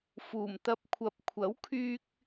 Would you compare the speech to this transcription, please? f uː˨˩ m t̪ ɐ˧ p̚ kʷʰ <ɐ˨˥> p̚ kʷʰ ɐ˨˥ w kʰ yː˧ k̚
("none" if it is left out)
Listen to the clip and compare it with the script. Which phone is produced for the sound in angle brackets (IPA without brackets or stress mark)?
ɐ˨˥